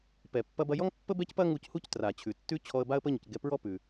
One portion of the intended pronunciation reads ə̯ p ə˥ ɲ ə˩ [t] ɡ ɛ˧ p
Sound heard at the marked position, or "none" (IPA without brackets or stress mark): c